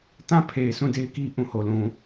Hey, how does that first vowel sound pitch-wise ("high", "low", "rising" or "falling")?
falling